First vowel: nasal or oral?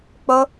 oral